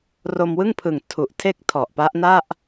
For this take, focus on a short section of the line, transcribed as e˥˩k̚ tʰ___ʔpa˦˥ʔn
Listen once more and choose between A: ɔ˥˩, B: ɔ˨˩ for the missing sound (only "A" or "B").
B